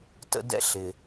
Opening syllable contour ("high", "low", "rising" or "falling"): high